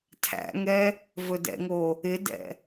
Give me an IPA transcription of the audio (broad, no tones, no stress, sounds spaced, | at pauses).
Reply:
tʰ æ̰ ŋ ɛ | v ɵ d ɛ̰ ŋ o | ɪ d ɛ̰